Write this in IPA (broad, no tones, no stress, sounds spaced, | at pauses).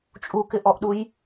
t͡ʃʼ u k ɪ ʔ ɔ ʔ ɗ u j